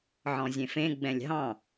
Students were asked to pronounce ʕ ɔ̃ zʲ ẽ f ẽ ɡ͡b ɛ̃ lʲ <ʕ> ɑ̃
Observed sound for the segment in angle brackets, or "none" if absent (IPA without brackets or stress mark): ɦ